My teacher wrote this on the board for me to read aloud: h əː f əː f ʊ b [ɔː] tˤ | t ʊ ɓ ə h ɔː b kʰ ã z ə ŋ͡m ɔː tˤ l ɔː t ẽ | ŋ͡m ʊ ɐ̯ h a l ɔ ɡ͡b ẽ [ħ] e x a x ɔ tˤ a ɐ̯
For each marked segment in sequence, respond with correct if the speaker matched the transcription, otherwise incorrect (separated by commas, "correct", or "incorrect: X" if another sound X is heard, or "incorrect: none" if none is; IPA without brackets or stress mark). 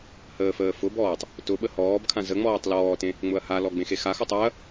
correct, incorrect: x